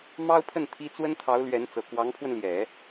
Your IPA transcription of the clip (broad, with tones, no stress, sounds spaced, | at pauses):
m ɑ˥ ʊ̯ pʰ ə˥˩ n t̪ʰ i˥ t͡s w ə˥ n t̪ʰ ɑ˧˥ ʊ̯ l ɥ ɛ˧˥ n t͡s ɤ˨˩ k w ɑ˧˥ ŋ pʰ w ə˧ n l j ɛ˨˩˦